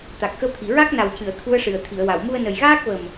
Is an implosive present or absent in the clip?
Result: absent